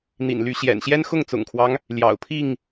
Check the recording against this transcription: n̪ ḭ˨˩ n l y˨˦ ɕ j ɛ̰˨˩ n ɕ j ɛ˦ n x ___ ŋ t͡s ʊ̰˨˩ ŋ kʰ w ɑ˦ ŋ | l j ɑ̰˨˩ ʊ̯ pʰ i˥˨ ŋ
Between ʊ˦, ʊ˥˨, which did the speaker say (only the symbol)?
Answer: ʊ˥˨